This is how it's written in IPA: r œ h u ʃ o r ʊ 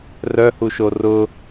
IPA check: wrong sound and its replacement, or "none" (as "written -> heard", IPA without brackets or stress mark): none